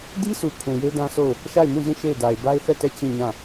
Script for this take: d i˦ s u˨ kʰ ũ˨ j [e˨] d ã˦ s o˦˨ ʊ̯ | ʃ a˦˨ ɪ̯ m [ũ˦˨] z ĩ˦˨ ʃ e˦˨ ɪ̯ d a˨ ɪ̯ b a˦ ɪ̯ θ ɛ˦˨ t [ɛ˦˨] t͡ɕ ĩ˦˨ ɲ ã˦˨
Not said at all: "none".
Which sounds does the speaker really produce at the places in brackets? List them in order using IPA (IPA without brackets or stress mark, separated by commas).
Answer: e˦, ũ˦˨, ɛ˦˨